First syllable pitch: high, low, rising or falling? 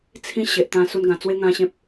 high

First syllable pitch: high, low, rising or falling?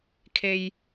low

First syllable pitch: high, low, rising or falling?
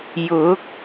rising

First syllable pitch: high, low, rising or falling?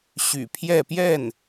low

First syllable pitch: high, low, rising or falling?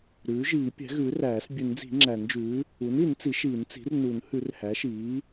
rising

